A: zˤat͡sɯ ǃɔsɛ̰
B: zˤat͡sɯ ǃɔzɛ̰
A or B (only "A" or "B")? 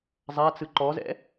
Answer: B